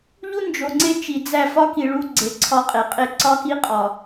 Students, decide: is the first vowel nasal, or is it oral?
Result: oral